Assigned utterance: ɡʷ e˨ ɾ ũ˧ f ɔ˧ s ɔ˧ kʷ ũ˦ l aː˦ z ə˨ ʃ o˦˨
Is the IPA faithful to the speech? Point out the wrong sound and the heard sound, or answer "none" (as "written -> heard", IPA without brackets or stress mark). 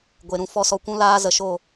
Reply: none